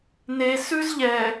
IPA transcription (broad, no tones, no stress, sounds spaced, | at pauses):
n e s ʉ z ʎ ɛ